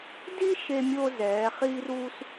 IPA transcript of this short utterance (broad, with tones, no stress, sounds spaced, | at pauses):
d i˥ ʃ e˧ mʲ o˧ z ɛː˩˧ χ iː˧ r uː˧ s